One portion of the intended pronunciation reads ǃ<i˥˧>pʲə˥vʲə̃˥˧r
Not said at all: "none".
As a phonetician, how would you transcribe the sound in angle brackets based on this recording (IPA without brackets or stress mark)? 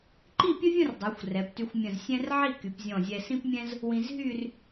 i˥˧